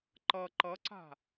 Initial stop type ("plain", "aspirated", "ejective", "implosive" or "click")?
click